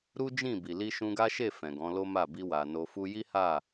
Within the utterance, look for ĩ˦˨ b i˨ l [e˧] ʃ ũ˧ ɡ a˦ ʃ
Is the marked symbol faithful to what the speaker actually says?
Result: no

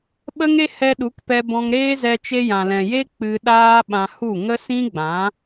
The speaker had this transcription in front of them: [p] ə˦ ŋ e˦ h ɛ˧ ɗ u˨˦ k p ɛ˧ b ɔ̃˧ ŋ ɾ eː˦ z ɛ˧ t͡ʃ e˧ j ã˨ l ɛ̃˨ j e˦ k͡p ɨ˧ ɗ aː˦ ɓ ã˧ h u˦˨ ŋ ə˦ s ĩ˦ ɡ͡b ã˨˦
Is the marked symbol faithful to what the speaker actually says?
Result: no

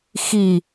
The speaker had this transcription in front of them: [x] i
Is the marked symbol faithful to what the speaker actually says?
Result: yes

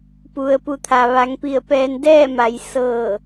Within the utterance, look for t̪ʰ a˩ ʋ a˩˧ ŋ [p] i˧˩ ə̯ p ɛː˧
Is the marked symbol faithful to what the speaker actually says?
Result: yes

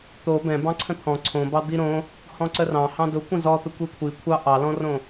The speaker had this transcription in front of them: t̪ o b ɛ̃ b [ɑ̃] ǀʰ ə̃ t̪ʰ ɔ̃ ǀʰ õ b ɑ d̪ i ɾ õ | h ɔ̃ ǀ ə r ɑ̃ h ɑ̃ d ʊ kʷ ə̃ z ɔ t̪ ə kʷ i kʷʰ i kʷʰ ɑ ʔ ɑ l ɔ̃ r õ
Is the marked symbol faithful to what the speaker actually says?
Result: yes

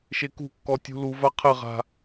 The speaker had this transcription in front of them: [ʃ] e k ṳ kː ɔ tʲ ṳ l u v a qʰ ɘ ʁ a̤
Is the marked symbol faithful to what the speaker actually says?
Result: yes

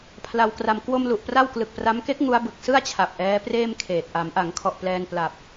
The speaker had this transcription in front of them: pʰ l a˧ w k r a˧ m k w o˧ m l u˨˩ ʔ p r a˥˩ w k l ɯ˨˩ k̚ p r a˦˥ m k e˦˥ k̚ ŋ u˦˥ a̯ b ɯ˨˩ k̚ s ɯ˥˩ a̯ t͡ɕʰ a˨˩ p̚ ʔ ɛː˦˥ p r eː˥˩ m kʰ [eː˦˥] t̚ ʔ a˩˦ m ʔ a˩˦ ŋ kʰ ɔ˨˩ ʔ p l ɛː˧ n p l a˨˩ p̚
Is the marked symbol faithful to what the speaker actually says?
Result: no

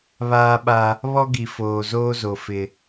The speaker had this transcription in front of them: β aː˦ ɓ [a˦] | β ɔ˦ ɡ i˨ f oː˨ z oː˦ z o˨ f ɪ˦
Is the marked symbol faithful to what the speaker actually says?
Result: yes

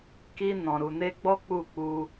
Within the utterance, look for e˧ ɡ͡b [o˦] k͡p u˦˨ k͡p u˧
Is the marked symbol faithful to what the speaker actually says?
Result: no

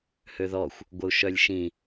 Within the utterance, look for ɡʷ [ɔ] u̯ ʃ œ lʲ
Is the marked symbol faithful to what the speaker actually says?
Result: no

